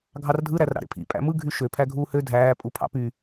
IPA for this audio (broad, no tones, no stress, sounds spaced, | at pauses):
ɡʱ ɑ r dʱ ɯ ɾ æ r ɾ ɑ̰ ɾ ḛ pʰ ḭ pʼ æ̰ m ɯ ɡʱ y ʃ ø pʰ æ ɡʱ uː h ø dʱ æː pʼ u pʰ ɑ̰ p y